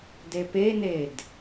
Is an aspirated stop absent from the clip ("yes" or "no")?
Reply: yes